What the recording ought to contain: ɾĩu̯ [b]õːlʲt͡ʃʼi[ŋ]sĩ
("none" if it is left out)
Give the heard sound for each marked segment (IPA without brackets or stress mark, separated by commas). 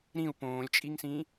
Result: p, ŋ